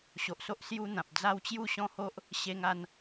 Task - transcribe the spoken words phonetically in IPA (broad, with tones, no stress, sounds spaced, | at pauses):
ɕ o˨ ʔ s o˦ ʔ s j u˦ n̪ ã˨ p̚ d͡z a˥˧ w t͡ɕ j u˥˧ ɕ ɔ̃˦ h o˦ ʔ | ɕ e˧ ŋ a˧ n